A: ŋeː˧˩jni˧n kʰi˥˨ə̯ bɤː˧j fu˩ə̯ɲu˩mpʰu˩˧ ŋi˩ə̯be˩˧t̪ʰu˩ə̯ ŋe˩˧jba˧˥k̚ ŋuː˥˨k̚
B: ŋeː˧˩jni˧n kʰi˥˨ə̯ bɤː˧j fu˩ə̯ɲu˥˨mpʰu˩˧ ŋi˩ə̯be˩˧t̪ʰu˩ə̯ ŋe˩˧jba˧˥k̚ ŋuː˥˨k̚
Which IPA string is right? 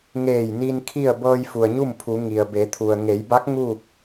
B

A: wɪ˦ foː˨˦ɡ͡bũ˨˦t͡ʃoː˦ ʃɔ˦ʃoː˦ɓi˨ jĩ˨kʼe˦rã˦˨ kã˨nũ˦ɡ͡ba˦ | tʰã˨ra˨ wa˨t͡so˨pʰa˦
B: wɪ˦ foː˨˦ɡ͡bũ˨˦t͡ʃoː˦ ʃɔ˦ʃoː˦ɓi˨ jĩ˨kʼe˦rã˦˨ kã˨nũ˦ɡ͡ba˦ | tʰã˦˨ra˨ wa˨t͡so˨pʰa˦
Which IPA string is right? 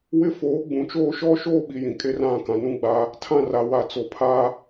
B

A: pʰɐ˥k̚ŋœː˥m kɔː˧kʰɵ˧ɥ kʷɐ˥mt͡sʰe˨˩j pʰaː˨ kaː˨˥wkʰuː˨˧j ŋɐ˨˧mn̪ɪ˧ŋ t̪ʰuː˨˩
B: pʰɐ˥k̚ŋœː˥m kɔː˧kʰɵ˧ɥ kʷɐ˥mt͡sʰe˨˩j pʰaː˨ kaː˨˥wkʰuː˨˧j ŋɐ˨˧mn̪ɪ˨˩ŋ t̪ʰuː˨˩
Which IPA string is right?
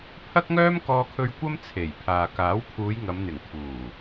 B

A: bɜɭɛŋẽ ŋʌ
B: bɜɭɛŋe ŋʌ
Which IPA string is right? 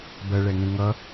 A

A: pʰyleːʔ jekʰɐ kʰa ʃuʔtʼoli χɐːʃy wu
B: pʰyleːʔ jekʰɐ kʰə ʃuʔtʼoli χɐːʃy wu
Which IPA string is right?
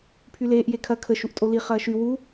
B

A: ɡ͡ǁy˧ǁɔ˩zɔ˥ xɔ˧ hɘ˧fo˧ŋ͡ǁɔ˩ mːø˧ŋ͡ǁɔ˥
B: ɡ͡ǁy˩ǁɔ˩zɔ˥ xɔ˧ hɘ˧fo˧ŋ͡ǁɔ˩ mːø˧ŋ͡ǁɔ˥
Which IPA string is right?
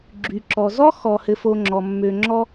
B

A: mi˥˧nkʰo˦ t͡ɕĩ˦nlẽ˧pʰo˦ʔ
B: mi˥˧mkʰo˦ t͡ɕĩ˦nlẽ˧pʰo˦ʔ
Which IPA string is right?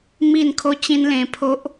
A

